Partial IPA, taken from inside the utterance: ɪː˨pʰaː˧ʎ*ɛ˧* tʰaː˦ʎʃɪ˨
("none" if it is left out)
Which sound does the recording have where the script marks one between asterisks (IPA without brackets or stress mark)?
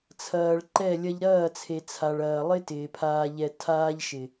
ɛ˧